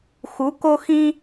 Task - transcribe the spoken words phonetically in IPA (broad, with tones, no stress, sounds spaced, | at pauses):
x u˨˦ k o˦ x ĩ˦